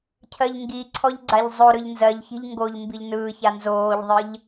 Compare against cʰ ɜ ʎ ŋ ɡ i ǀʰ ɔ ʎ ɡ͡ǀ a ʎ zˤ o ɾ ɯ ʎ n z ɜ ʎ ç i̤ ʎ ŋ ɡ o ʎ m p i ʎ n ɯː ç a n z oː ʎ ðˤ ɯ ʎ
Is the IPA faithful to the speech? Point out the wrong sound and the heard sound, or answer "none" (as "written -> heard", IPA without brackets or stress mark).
p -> b